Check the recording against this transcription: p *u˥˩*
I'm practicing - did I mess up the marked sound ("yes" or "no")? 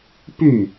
yes